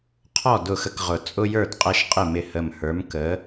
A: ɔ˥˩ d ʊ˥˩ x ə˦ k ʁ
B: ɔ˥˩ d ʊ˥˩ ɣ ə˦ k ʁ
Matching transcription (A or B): A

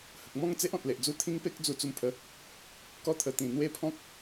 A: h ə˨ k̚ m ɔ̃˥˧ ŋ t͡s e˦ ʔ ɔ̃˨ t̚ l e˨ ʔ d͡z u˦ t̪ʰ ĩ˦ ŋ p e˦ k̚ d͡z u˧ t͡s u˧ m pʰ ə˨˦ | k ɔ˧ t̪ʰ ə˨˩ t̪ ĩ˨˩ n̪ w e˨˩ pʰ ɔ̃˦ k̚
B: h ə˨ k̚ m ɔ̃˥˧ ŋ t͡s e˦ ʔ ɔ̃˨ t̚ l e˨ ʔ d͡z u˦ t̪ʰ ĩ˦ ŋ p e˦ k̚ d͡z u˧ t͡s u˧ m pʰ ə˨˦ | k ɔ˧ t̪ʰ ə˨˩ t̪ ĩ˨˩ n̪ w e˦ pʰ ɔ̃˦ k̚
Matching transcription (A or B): B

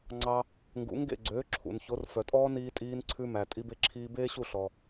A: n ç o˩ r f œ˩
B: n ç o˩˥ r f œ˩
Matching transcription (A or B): B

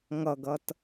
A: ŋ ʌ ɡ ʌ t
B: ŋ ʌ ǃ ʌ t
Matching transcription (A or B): A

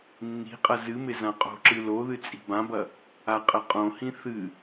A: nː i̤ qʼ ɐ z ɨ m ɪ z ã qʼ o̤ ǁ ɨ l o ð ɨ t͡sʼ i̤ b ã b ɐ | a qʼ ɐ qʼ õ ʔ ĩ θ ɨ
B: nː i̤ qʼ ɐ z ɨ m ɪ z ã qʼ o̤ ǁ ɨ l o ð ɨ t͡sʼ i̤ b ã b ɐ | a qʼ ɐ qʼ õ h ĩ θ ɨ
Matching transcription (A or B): B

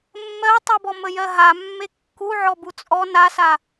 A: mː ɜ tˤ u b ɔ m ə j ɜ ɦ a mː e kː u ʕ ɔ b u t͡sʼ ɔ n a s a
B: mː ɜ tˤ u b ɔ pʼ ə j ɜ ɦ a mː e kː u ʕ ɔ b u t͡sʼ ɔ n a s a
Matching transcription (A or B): A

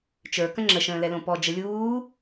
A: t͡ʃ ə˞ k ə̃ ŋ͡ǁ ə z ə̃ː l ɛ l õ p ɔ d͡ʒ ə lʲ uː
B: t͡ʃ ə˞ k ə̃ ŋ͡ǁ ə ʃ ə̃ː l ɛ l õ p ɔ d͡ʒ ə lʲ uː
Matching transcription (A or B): B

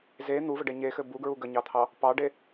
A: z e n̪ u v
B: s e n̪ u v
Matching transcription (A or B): A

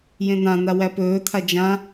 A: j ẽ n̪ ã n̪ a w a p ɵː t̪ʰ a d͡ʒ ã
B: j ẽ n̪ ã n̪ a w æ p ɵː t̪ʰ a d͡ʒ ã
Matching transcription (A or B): B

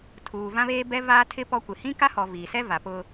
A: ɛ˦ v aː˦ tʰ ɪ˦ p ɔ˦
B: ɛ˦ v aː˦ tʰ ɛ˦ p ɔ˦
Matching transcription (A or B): A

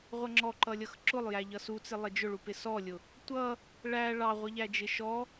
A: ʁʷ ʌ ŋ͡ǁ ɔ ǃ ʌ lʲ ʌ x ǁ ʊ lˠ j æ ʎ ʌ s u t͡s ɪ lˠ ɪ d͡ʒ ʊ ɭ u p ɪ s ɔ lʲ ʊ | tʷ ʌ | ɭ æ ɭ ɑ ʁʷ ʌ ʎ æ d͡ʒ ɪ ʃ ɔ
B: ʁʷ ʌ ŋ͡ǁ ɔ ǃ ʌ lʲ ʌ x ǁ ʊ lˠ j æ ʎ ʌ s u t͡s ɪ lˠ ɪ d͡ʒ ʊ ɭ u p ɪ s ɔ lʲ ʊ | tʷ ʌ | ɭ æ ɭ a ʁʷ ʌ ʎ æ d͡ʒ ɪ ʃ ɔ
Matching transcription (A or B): A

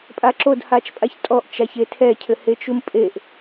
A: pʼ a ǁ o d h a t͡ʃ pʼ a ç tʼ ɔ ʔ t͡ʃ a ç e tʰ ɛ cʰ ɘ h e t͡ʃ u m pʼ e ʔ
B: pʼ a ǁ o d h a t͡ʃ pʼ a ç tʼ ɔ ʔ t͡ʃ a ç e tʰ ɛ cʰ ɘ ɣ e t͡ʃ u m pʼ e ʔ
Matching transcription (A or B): A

